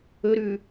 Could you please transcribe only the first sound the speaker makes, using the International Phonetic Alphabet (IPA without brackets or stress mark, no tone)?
ɵ